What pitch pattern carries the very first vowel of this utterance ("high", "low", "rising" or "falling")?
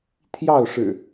falling